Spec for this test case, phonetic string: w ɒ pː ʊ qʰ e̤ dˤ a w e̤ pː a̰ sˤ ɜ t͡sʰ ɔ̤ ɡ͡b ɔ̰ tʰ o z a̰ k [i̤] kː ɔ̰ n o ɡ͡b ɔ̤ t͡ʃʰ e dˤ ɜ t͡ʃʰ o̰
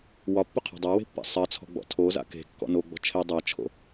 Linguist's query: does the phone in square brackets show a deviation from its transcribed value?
yes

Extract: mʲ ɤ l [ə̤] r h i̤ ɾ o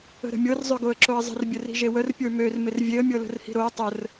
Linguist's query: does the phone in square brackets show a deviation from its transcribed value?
no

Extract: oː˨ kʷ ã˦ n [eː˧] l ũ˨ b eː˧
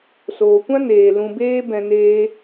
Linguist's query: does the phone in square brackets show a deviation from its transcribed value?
yes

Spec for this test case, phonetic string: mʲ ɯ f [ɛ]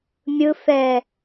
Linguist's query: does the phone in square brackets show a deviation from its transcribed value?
no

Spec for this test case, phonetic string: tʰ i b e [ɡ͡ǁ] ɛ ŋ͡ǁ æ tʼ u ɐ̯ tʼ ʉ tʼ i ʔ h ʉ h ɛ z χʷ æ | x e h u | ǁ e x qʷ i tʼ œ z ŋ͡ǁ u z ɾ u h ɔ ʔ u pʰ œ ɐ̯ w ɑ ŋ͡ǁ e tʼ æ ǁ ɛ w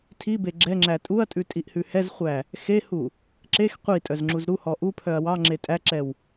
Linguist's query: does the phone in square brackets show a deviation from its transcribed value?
no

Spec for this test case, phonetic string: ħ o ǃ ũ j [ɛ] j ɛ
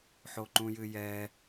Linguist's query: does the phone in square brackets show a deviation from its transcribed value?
yes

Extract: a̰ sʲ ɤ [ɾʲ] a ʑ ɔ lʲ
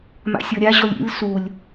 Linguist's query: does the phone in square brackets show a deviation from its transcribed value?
no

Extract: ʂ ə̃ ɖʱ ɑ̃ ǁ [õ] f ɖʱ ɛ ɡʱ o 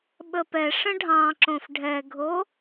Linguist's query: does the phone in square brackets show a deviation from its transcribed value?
no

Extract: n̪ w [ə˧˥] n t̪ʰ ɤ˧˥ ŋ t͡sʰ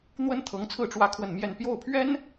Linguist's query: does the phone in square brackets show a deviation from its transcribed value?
yes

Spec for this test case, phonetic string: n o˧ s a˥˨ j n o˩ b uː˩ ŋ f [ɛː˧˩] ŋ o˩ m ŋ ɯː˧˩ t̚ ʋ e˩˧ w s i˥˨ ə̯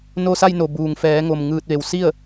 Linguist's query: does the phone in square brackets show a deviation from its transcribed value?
yes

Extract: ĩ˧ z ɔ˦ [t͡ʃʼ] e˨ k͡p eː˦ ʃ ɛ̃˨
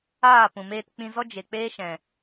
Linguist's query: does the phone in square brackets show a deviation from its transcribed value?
yes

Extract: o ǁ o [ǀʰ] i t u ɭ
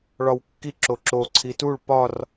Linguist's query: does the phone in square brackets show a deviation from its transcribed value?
no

